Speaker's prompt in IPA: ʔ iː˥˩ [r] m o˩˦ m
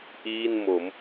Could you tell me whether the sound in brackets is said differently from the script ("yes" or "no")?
yes